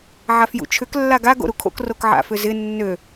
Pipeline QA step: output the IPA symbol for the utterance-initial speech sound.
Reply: ʕ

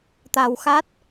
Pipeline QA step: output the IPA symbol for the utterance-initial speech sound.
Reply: t̪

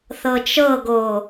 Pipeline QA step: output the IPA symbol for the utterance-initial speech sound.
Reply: θ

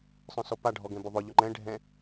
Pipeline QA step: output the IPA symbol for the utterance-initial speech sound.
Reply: sˤ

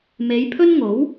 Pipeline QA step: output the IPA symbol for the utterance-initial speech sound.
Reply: m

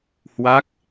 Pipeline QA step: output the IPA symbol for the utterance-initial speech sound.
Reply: h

